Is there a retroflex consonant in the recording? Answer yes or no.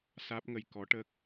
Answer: yes